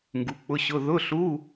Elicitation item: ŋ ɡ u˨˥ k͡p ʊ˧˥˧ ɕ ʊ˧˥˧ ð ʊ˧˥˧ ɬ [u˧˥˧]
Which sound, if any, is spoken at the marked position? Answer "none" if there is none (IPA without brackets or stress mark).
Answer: u˧˥˧